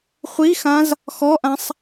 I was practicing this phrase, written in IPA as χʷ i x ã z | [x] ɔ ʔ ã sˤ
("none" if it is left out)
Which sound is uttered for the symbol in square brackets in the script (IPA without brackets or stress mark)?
x